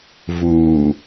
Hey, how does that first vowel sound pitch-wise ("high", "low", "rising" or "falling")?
low